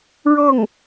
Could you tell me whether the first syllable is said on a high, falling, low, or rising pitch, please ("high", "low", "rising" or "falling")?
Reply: falling